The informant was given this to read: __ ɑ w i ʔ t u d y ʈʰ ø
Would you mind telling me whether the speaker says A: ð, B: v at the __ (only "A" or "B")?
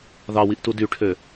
A